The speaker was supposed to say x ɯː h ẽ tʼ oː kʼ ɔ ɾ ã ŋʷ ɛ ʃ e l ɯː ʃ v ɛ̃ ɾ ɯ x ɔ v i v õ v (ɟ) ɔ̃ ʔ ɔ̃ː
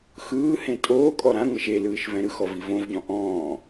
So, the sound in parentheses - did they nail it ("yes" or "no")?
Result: yes